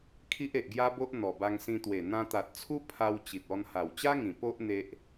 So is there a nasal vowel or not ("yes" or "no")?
yes